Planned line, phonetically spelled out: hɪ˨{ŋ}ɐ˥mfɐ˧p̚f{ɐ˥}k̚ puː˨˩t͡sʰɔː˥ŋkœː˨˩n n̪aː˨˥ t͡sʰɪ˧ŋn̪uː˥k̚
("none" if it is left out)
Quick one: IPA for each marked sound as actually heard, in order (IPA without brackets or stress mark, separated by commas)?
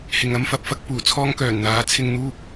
ŋ, ɐ˥